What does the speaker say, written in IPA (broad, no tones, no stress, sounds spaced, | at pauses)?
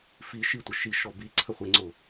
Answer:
f i ʃ i tʷ ə ʃ i ʃ ɔ b i ǀʰ ə χʷ i ŋ͡ǀ ʊ